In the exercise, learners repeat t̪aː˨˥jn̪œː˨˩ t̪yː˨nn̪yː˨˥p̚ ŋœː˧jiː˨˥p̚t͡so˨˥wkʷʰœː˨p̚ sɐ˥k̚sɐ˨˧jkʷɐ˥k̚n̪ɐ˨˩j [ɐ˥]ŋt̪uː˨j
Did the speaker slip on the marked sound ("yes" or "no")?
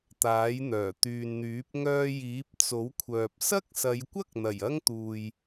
no